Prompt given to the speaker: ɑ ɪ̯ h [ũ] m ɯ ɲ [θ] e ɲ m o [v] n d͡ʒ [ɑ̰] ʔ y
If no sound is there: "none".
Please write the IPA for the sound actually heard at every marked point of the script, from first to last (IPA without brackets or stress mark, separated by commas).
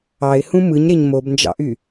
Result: ũ, ɾ, b, ɑ̰